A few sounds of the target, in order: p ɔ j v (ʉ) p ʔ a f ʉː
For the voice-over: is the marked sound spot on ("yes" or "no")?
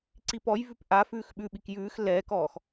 yes